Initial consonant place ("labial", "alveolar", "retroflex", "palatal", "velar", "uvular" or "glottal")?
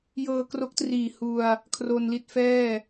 palatal